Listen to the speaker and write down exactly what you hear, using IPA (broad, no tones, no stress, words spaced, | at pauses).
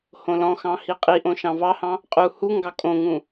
hõlɔ̃xɑ̃ hiqʼiʔõ ʃɑ̃vɑhɑ̃ | qʼu huŋɡɑ kʼõŋũ